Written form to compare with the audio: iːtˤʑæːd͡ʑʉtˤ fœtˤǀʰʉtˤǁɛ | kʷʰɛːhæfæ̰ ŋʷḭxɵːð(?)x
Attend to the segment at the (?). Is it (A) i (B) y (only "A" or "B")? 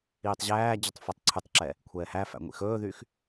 B